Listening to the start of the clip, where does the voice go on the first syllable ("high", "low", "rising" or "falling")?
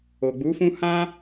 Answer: low